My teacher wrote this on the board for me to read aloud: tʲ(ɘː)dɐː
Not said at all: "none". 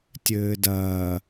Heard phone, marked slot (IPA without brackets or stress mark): ɘː